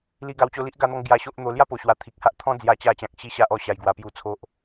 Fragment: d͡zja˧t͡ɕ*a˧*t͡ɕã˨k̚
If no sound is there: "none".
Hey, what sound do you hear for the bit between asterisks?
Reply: a˧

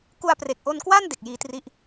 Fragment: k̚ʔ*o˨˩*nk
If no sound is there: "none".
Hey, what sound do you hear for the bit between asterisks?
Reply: o˧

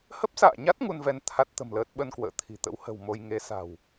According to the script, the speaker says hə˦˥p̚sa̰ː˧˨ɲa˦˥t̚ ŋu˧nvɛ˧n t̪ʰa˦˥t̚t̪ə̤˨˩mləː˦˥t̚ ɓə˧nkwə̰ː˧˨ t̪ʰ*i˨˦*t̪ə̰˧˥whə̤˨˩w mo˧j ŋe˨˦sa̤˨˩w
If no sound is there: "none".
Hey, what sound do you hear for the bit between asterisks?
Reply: i̤˨˩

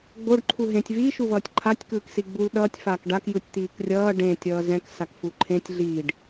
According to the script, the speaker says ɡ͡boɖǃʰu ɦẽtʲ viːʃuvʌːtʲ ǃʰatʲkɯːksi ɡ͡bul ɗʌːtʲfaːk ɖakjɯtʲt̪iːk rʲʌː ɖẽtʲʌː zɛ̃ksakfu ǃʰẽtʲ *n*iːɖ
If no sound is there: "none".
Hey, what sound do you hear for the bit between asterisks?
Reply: ɮ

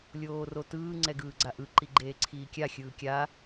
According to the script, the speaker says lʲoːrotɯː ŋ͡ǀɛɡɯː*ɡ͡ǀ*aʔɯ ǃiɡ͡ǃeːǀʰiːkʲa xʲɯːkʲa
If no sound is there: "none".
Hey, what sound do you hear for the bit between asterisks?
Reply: ɡ͡ǀ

